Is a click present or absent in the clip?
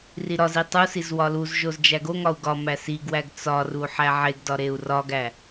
absent